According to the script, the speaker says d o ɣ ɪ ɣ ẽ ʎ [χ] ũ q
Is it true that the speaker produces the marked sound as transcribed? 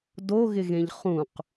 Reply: yes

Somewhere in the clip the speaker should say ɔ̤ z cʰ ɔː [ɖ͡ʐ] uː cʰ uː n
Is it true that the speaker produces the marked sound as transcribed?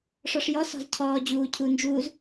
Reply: no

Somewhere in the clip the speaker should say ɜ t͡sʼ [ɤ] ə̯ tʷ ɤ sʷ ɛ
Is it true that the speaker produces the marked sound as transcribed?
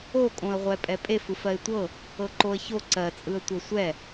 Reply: no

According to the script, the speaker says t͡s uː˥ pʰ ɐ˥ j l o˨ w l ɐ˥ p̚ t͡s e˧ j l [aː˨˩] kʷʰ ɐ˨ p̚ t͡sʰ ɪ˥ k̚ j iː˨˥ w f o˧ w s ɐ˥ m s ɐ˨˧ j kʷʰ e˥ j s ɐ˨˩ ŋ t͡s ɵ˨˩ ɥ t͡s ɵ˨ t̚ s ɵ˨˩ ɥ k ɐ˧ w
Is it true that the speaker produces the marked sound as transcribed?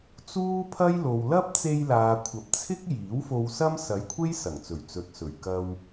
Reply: no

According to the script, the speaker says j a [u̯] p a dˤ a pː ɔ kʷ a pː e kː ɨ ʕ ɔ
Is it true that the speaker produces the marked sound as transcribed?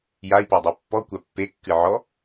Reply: no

